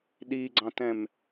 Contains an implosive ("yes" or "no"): yes